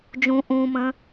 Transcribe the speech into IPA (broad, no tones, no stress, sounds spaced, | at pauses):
d͡ʒ ũ ʔ ũ m ə̃